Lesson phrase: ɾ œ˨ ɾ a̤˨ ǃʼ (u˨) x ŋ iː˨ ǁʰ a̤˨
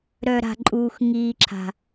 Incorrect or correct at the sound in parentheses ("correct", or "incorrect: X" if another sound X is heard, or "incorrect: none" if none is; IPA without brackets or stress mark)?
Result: incorrect: uː˨